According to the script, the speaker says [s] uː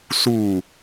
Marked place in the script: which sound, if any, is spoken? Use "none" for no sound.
s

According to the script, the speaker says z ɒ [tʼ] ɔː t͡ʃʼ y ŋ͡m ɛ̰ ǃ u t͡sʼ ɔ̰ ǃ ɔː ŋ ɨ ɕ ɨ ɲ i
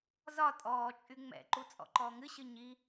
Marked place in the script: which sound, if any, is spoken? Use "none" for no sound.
tʼ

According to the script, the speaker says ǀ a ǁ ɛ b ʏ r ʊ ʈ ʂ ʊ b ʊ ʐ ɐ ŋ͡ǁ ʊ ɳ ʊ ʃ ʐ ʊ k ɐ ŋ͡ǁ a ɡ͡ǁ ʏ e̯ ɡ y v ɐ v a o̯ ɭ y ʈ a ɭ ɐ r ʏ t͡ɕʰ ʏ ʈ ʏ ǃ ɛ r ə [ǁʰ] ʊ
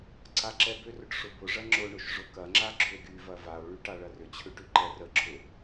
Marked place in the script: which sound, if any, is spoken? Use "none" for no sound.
ǁʰ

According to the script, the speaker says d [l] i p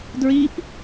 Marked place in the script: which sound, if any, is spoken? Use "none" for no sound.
ɹ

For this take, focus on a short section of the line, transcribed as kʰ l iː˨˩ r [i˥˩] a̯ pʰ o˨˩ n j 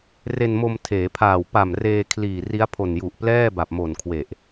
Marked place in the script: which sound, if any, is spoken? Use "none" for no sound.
i˦˥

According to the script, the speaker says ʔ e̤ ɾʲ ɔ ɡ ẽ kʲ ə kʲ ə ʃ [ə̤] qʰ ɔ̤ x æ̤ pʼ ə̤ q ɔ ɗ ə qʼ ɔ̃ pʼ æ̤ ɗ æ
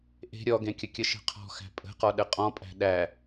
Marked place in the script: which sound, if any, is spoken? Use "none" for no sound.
ə̤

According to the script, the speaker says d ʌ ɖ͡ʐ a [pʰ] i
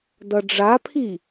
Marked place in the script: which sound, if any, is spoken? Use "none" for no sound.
pʰ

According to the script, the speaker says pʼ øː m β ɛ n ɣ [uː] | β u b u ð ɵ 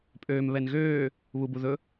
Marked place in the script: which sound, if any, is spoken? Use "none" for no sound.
øː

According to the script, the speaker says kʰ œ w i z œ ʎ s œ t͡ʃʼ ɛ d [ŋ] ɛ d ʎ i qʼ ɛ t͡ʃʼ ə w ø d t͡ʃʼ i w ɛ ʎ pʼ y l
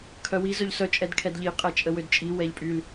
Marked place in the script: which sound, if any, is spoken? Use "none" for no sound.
kʰ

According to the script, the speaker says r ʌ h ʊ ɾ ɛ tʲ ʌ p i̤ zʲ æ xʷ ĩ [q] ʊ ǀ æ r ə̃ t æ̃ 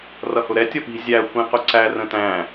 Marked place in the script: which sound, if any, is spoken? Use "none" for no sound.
q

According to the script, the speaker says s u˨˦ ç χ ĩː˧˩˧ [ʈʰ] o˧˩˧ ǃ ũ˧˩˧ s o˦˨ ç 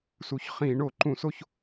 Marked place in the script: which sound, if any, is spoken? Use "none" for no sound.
ɳ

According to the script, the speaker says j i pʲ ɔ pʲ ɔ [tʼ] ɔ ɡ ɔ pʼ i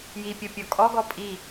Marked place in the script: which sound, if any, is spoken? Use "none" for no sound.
kʼ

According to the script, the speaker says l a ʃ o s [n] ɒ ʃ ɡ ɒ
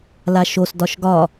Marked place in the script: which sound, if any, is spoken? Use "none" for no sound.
d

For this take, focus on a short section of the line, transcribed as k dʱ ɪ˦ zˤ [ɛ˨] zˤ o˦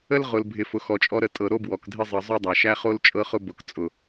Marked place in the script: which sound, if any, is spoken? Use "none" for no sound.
ə˨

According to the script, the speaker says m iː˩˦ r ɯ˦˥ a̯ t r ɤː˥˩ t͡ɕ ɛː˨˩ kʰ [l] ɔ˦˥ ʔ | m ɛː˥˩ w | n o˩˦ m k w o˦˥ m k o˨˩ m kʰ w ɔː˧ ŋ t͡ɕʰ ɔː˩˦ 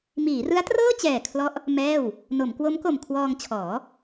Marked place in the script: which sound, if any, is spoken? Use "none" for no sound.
l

